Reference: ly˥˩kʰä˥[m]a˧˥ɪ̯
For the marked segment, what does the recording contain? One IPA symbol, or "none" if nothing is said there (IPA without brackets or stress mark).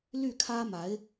m